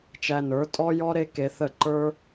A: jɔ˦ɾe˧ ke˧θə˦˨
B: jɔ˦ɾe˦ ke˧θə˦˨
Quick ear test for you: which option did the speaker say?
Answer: B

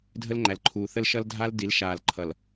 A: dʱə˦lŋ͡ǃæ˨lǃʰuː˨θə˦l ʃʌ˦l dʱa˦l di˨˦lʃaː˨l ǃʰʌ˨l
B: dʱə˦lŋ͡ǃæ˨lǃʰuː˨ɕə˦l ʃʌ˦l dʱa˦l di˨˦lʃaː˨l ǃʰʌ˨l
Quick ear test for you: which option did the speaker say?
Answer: A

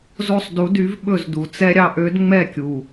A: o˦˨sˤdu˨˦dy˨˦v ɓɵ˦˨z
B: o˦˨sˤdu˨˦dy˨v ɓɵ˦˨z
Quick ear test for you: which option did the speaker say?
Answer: A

